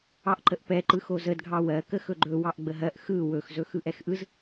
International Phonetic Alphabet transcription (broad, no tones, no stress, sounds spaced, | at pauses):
ɑ ʔ ǃ ə ʔ p ɛ ǃ ɯ x o z ə d ɡʱ ɑ w ɜ k ə x ɵ ɡ͡ǃ ɵ w ɑ ʔ ɡ͡b ə ɦ ɜ ʔ x ɯ w ɵ x z ɵ x ɯ ʔ ɛ x ʔ ɯ z